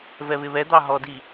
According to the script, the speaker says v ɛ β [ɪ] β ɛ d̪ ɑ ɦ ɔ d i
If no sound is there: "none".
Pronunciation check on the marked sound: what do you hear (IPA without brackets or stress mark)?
ɪ